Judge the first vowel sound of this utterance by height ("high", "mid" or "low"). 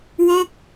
mid